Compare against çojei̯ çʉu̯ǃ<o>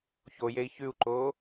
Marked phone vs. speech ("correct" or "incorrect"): incorrect